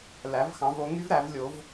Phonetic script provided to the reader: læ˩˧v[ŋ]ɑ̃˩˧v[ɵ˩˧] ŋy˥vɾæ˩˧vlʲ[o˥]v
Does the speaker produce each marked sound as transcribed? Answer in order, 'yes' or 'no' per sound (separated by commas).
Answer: no, no, no